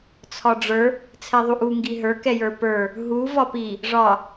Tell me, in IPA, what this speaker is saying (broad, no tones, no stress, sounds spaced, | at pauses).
t͡sʰ ɒ ɖ͡ʐ ə˞ | t͡sʰ ɛ ðˤ u ʔ u ŋ ɡ i ɦ ə˞ k ɛ j ə˞ p ə˞ | ɦ u v ɒ p i | ʐ ɒ